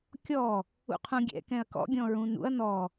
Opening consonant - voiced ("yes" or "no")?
no